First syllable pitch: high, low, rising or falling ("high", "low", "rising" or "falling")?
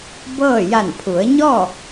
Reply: falling